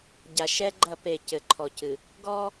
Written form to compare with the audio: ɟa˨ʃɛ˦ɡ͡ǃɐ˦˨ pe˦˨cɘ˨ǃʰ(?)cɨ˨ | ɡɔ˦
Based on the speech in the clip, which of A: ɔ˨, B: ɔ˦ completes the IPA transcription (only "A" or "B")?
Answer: A